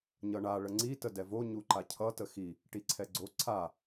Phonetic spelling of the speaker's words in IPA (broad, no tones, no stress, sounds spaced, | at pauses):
ɲ ʌ ɳ a ɭ ə ŋ͡ǀ i t ə d ɛ v o ɲ u ǃ a cʰ ʌ t ə x i | ʈ i ǀʰ ɛ ɡ͡ǀ o ǀʰ a